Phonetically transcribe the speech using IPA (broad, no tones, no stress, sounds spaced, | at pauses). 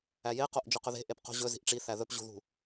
æ j e q o ʔ d͡ʒ ɵ q ɵ ð e̤ ʔ e p q o̤ ʑ ɵ z i̤ ʔ ʈ͡ʂ i θ æ ð ɵ p ʑ ṳ ð ṳ